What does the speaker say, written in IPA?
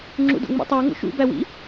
ŋ͡ǁ ṵ d o̰ ŋ͡m ḭ tˤ ʉ u̯ ŋ o̰ ʃ ṵ b æ w ḭ

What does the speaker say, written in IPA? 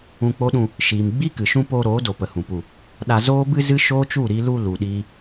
ũ˧ k͡p o˦ ɗ ũ˧ | ʃ iː˨ m ɡ͡b i˦ k ɨ˨ ʃ ũ˦ p oː˧ ɾ oː˨˦ d o˨ p ə˨ h ũ˨ p u˨ | ɗ a˧ z oː˦ b ɨ˦ z ɨ˦ ʃ oː˦ t͡ʃ u˦˨ ɾ i˧ l u˧ l u˨ ɗ iː˧

